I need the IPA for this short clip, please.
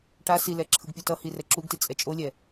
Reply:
ʈ a s i l ɛ ǁʰ ɯ ɡ pʲ u t ʌ h i r ɛ ǁ u ɡ t i t͡sʼ ɛ t͡ʃʼ o lʲ ɛ

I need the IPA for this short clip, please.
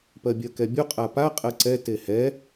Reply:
p ɜ bʲ ɜ k ɛ bʲ u qʼ a p a qʼ ɜ ǀ ɛ t e h ɛ

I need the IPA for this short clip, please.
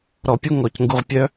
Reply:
ɾ ɔ˨ pʲ u˦ ŋ ɔ˨ c ŋ ɡ u˨ ʁ pʲ œ˧

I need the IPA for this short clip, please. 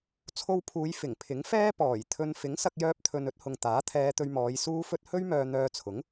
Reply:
t͡sʰ o˧ w pʰ uː˨˧ j f ɪ˨˩ ŋ pʰ ɪ˨˥ ŋ f ɛː˥ p ɔː˨˩ j t̪ʰ ɵ˧ n f ɪ˨˥ ŋ s ɐ˧ k̚ j œː˧ p̚ t̪ʰ ɵ˨ n ɵ˨˥ t̚ h ʊ˨ ŋ t̪ aː˨˥ t̪ʰ ɛː˧ t̪ ɵ˧ ɥ m ɔː˨˧ j s uː˥ f ɵ˥ t̚ h ɵ˥ ɥ m œː˧ n̪ œː˧ t͡sʰ ʊ˨˥ ŋ

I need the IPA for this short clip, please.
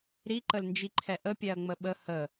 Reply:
ɾ i ǃ ə l n d͡ʒ i ǃʰ ɛ ʔ ə pʲ ɛ ɐ̯ ŋ͡m ə ɓ ə h ə

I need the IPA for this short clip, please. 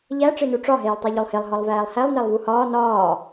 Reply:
ʎ æ ʈ͡ʂ e n u ʈ͡ʂ ɒ ɦ eː lˠ tˤ æ ʎ o lˠ h e lˠ ɦ ɒ lˠ v æː lˠ h æ lˠ n æ lˠ v u h ɒː n ɒː

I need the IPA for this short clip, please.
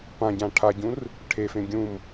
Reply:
p ã ɟ ã ʈʰ a ɟ ũ r | ʈʰ e f ẽ ɡʲ ũ m

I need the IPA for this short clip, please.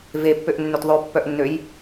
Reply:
v e pː ø ʔ nː ø t ðˤ ø pː œ ʔ nː ø j

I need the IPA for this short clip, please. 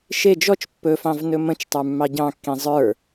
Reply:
ʃ e d͡ʒ ɔ t͡ʃ pː ɵ f ɑ̃ v n ɵ m ə̃ t͡ʃ tˤ ə˞ mː ɑ ɟ ɑ̃ kː ĩ zˤ ə˞

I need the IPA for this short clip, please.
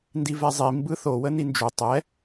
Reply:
n d i v ɛ zˤ i m b ɯ θ o w ə n i n d͡ʒ u tˤ ɛ

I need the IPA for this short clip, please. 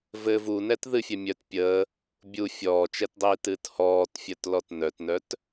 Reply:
v ɘ v u n ɛ t ð ɨ fʲ ɛ mʲ œ t pʲ əː | bʲ u fʲ ɔː t͡ʃ ɛ t dˤ iː t ɨː t h ɔː t fʲ œ t l ɔ t n œ t n œ t

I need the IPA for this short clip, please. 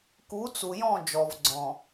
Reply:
k u˨˦ t͡s u˨ j ɔ̃˦˨ d͡ʒ ɔ˨ v ɡ͡ǀ ɔ̃˨

